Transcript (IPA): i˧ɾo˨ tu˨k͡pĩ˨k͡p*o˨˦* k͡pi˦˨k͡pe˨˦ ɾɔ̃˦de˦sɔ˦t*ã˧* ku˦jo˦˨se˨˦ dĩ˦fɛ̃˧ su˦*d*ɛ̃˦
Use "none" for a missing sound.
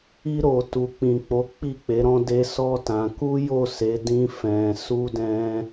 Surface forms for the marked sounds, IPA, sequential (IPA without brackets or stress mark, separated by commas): o˨˦, ã˧, d